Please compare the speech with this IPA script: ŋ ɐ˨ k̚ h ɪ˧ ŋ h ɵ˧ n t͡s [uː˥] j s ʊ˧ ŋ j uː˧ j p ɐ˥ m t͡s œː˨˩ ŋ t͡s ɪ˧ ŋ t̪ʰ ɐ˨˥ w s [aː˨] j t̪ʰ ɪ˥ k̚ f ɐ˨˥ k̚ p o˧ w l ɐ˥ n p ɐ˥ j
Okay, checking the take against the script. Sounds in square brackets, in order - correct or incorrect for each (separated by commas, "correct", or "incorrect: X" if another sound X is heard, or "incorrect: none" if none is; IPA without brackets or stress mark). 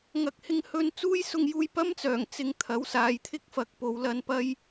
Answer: correct, correct